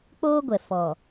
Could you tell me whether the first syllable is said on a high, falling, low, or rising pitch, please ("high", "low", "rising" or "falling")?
high